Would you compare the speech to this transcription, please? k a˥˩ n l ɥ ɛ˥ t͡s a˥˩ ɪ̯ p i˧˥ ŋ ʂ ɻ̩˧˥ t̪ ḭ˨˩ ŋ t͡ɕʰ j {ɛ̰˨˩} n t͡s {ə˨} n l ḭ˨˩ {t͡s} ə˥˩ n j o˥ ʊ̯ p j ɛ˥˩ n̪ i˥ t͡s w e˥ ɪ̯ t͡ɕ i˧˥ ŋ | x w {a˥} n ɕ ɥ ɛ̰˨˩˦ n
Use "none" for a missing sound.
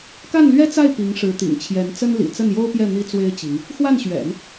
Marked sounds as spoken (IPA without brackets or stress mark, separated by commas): ɛ˧˥, ə˥, t͡s, a˥˩